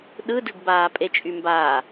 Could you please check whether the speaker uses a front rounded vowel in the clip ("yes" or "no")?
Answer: yes